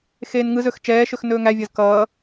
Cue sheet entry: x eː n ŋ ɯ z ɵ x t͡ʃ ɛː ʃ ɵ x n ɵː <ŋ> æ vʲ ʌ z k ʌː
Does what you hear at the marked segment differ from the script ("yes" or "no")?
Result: no